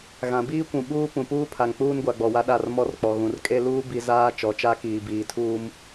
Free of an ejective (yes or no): no